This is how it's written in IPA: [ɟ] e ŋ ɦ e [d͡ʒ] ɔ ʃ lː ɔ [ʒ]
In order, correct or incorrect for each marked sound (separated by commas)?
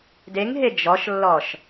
incorrect, correct, incorrect